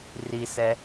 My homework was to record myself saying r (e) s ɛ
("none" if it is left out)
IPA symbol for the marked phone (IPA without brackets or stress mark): i